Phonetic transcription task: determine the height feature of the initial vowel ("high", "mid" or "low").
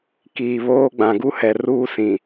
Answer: high